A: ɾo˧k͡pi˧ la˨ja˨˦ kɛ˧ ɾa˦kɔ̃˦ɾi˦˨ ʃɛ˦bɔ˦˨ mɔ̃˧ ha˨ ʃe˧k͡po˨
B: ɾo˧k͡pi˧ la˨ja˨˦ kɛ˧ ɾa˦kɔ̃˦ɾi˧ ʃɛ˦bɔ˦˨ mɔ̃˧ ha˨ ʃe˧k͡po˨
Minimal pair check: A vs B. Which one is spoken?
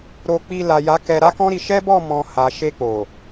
B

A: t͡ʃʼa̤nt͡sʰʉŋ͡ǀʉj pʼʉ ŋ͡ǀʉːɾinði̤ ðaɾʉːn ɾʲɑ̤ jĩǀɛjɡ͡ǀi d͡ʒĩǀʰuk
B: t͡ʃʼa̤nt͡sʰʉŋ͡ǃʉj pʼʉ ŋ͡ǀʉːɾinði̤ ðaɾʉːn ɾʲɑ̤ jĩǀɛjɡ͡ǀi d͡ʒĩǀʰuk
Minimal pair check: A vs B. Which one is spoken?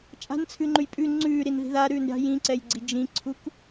B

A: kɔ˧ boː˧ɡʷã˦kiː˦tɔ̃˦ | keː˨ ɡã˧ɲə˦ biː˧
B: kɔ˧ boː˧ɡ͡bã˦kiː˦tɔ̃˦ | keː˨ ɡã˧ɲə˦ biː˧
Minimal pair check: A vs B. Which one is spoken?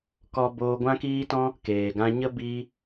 A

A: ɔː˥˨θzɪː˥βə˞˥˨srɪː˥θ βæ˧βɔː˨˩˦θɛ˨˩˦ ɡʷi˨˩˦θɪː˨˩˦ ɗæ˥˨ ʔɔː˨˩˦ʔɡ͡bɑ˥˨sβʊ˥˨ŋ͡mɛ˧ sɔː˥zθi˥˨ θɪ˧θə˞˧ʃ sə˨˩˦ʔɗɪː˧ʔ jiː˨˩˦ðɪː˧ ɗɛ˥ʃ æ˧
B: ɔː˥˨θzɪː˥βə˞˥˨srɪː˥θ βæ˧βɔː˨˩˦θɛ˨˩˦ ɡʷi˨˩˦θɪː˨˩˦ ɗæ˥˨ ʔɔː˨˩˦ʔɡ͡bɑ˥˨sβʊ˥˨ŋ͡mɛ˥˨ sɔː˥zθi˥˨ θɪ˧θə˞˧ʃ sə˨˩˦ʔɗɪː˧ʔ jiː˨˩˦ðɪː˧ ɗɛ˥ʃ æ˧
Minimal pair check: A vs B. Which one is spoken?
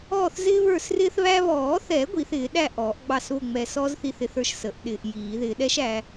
A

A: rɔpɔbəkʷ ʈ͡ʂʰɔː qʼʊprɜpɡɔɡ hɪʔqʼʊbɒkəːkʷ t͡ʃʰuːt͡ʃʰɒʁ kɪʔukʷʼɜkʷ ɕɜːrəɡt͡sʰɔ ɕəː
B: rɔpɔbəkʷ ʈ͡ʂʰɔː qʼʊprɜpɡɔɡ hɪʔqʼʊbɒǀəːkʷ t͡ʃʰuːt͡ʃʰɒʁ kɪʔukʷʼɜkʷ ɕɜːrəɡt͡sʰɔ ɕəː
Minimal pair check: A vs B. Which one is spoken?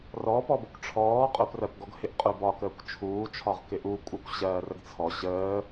A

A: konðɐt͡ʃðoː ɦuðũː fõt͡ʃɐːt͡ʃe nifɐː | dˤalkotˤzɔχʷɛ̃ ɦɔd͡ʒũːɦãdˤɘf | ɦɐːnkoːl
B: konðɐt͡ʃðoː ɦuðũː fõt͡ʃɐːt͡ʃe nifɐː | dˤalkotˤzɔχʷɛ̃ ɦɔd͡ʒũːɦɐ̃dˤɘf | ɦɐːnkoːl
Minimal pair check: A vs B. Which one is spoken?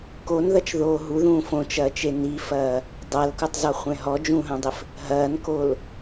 B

